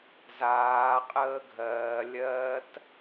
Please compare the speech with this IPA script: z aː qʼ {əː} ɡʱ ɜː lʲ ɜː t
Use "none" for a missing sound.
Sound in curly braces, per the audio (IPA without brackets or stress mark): əː